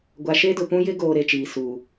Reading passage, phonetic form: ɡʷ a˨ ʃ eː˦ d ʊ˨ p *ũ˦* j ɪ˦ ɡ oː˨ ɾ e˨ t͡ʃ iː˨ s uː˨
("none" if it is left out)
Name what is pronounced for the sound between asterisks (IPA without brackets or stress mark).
ũ˦